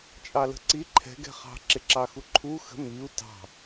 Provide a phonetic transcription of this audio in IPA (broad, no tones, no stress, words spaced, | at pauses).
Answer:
t͡ʃʼɑlə̤ǀi ǃʰɛ̤ ɡɛ̤χɑ̤ ǁɪǁɑxuǃʰu xə̤ miu̯ tɑ̤